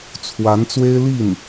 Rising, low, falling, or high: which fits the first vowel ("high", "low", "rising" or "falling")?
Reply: rising